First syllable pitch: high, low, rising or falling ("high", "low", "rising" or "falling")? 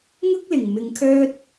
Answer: high